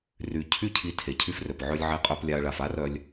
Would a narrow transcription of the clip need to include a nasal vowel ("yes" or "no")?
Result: no